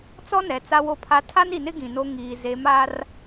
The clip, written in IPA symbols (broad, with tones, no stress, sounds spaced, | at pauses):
t͡s ɔ˦ n ɛ˨ t͡s a˦ w o˦ pʰ a˦ tʰ a˦ n i˨ n ɪ˦ ɡ ĩ˨ n o˦ ŋ iː˨ z e˨˦ m a˦ r